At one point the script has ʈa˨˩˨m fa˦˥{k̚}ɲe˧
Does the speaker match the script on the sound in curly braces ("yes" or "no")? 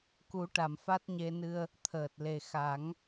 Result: no